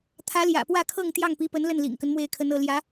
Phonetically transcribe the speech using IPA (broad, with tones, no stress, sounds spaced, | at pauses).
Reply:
t̪ʰ ä˧˥ l j ä̰˨˩ p w ä˥˧ kʰ ɤ˥˧ ŋ t̪ j ɑ˥˩ ŋ p i˧˥ p ə˧˥ n l ə˥˩ n l ḭ˨˩ ŋ k ə˦ n m w e˥˩ ɪ̯ kʰ ə˧˥ n ɤ˥˩ l j ä˧˥